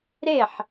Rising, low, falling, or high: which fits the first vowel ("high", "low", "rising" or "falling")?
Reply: falling